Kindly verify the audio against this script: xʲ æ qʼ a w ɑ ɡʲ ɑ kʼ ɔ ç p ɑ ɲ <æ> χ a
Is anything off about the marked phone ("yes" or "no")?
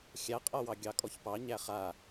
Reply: no